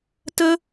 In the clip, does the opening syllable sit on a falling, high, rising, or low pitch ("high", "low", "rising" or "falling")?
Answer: high